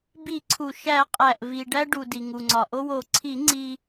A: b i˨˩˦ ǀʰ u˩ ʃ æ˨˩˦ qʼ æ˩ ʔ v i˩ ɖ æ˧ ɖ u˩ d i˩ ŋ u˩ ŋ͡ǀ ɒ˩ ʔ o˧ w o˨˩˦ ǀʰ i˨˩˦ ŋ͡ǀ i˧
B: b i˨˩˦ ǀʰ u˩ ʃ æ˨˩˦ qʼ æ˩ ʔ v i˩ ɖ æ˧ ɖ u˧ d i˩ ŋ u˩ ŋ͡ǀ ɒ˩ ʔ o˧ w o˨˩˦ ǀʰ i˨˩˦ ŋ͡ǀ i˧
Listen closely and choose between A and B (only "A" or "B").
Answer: A